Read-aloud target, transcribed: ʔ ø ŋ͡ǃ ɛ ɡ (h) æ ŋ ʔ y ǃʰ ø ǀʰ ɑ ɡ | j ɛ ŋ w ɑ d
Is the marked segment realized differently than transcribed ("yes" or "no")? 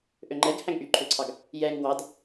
no